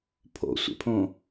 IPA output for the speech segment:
pʰ o̰ sʷ ḛ pʰ õ

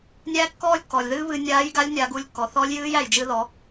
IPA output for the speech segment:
nʲ æː˥ kː ɔː˥ lʲ kː ɔː˩ lʲ ð ɨː˥ β ɨ˧ nʲ aː˧˥ j ɡ a˧˥ lʲ nʲ a˧˥ ɡ u˧˥ lʲ kː ɔ˩ θ ɔ˧˥ lʲ j ɨː˧˥ j æ˩ j d͡ʒ ɨ˧ ð ɔ˩˧

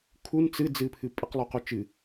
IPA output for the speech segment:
kʰ u n t͡s ɨ d͡z ɨ pʰ ɨ pʼ ɨ q lˠ u q u t͡ʃ ɨ

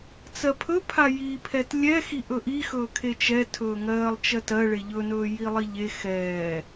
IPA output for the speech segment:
t͡s ɜ pʰ ɵ pʰ a j i pʰ ɛ t lʲ ɛ x i ʔ ɵ ʔ i x ɵː kʰ e t͡ʃ ɛ tʰ ɵː ŋ ɜː lˠ t͡ʃ ɜ t ɜ ɭ e ʎ ɵ n ɵː j i lˠ i ʎ e x ɛː

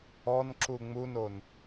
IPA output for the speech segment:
ɔ n ǁ u ŋ͡m u n o n

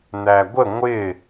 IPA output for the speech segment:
n̪ æ ɡʷ ə ŋʷ ɪ

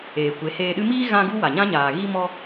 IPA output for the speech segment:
eː˨ kʷ e˨˦ h eː˧ ɗ ɨ˦ m iː˦ ɣ ã˦ ɡ u˦ w a˨ ɲ ã˦ ɲ aː˨ ɣ i˦ m ɔ˦

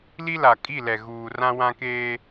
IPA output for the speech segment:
l i˦ l a˨ kʼ i˦˨ l ɛ˨ ɣ uː˨ r ã˦ w ã˦ k eː˦

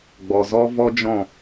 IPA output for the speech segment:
ɡ͡b ɔ˨ z ɔ˦ v ɔ˦ d͡ʒ ɔ̃˦˨

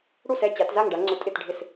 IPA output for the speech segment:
ɽ u˥˨ s ɛ˥˨ t͡ɕ a˨˦ t z a˥˨ ŋ ɖ a˨˦ ŋ͡ǀ ʊ˨˦ tʼ ɪ˥˨ t ɖʱ ɪ˥˨ s

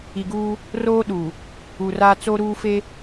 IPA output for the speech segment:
i˨ ɡ uː˦ | r oː˦ ɗ u˨ | u˨ r a˦ t͡s oː˦ ɾ uː˦ f e˦

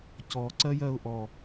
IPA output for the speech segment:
c ɔ ǀ ɜ j ɜ ʊ̯ ʔ ɔ

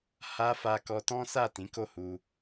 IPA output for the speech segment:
h a˧ f a˧ k ɔ˧ t ɔ̃˦ s a˦˨ t ĩ˨˦ k o˦˨ h u˧

